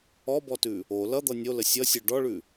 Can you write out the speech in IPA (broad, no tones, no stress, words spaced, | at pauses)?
ɔbɔtʉ | o lʌd̪ʌ nʲolə sʲʌsʲœ ɖɔɭʉ